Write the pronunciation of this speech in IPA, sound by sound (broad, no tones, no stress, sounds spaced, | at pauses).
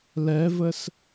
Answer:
l ɛ v ə s